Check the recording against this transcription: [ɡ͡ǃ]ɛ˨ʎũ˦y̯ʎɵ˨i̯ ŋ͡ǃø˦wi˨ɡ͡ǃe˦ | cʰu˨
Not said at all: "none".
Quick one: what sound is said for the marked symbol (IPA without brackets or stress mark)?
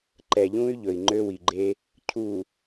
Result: ǃ